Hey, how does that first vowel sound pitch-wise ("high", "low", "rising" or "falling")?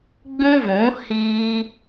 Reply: high